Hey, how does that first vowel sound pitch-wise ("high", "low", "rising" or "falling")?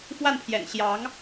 falling